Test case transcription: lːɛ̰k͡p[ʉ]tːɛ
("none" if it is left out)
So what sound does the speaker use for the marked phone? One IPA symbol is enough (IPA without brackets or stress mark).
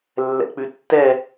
ʉ